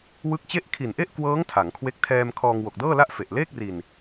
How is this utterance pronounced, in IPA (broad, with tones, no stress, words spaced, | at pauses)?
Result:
wɯ˦˥k̚t͡ɕe˥˩ʔ kʰi˨˩nʔe˥˩ʔkwɤː˦˥ŋ tʰa˩˦ŋkʰwe˦˥k̚ tʰɛː˧m kʰɔː˧ŋ wo˨˩k̚dɤː˥˩la˥˩ʔ fe˨˩ʔleː˥˩k̚ri˧n